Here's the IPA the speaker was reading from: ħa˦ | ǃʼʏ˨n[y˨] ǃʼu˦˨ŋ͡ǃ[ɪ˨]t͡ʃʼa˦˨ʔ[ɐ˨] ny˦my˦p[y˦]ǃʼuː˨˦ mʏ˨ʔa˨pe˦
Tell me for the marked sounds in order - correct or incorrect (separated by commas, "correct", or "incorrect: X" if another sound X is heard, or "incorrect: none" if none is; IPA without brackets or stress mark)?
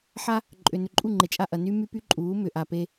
incorrect: ʏ˨, correct, correct, correct